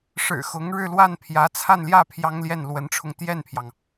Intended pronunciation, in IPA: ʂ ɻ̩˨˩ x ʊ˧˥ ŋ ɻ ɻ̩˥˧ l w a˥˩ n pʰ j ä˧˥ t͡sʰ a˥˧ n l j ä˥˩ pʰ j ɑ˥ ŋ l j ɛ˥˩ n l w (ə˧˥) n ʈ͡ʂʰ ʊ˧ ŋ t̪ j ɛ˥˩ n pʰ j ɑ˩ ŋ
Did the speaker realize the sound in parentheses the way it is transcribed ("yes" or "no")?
yes